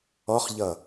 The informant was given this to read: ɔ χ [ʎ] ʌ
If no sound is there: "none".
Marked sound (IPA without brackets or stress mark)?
ʎ